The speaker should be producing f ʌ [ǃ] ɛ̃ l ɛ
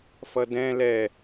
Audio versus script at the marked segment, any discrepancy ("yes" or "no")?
yes